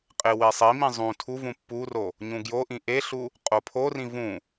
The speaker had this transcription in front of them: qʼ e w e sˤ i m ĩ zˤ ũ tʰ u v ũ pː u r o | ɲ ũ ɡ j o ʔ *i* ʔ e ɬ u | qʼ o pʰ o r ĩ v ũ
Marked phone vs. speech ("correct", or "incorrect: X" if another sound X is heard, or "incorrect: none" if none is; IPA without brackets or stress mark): incorrect: ĩ